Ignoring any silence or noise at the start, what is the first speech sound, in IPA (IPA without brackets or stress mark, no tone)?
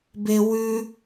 b